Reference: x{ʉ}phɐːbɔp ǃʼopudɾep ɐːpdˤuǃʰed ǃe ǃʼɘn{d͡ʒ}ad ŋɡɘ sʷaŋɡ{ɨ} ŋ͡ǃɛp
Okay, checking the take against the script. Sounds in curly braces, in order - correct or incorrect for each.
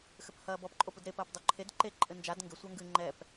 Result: incorrect: ɘ, correct, correct

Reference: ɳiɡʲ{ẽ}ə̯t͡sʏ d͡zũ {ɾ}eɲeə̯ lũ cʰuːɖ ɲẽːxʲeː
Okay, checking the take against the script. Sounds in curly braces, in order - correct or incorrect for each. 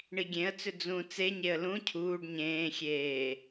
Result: correct, incorrect: t͡s

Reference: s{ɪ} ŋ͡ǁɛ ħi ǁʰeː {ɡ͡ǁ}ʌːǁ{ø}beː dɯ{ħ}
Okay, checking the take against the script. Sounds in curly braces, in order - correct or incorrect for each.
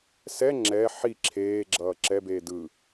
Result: incorrect: ɛ, correct, incorrect: ɛ, incorrect: none

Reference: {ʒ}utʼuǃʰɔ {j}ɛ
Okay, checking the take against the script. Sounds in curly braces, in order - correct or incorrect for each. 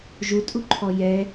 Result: correct, correct

